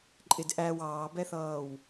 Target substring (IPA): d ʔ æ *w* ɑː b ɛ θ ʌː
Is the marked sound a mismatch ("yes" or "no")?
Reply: no